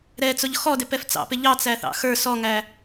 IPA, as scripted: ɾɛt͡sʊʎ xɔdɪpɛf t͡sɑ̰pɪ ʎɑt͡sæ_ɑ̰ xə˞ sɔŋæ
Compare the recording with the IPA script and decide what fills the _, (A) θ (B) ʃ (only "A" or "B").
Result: A